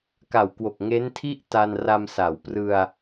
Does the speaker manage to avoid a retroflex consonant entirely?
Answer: yes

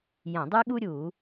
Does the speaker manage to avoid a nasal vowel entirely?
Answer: no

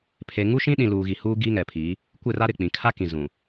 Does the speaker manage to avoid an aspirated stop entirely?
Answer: no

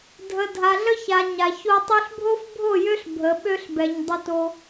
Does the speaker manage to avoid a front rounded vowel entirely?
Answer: no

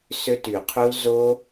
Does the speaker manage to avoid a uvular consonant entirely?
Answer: no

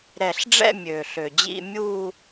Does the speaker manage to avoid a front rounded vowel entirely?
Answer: no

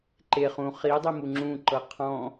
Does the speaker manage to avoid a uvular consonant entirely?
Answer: no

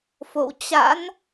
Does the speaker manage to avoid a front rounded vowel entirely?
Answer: yes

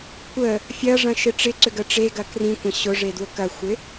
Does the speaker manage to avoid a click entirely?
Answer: no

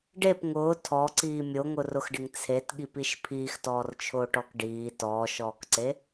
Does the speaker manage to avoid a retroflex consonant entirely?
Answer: no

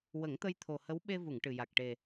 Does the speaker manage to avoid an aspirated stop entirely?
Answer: no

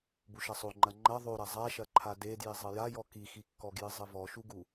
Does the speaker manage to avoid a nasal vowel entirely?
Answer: yes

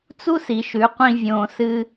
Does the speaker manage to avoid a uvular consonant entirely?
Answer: no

